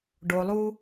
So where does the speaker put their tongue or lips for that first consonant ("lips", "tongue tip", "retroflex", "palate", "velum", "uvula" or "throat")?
retroflex